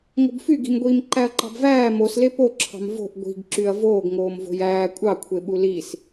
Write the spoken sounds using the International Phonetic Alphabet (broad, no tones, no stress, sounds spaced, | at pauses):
ŋ o̤ b f y ɡ i̤ m ɡʷ iː m ǃ æ ɐ̯ ǃ ɑ̤ b v æː m o s l e p o ǁʰ ɑ̤ m v o̤ ʔ ɡʷ i̤ ɡ ǁ y ɐ̯ v oː ɡ ŋ oː m v o̤ j æː kʷʼ ɑ kʷʰ e ɓ u l i s